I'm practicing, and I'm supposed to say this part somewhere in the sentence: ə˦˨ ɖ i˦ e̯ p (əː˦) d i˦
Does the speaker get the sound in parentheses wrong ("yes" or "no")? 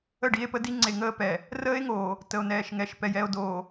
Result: yes